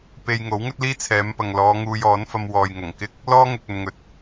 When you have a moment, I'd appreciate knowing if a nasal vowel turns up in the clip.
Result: no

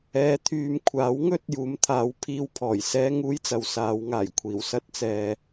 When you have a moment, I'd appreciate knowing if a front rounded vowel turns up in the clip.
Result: yes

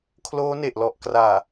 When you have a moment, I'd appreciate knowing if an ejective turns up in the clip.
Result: no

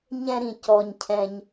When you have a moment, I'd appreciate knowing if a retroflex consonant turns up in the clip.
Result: no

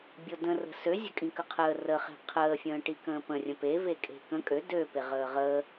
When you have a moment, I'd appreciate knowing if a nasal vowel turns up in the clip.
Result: yes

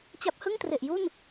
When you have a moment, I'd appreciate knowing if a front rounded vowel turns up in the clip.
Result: no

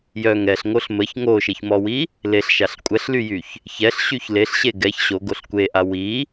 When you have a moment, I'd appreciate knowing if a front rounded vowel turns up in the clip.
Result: yes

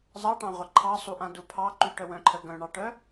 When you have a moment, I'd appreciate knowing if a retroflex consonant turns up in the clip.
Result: yes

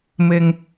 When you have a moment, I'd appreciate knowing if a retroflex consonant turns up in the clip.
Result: no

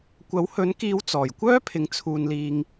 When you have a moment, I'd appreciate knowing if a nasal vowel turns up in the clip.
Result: no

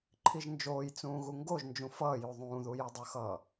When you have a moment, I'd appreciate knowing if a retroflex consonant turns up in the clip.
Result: no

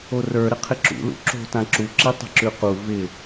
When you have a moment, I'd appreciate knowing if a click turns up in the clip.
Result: yes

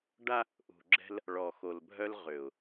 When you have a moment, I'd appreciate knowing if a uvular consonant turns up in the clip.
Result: yes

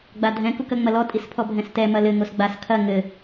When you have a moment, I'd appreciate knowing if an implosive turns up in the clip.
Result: no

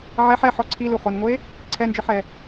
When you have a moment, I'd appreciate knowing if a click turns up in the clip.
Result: yes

